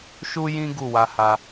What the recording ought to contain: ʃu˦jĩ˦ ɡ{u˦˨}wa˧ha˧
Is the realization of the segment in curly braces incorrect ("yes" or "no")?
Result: no